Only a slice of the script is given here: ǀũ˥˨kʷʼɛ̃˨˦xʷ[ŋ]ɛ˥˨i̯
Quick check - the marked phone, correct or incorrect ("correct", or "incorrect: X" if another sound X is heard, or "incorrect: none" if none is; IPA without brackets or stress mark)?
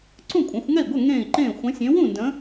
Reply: correct